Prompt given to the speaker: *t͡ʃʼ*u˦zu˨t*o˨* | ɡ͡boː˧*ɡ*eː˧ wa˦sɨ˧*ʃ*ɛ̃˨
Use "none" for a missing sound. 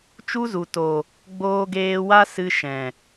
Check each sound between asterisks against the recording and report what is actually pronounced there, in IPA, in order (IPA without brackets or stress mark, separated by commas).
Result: t͡ʃ, o˨, ɡ, ʃ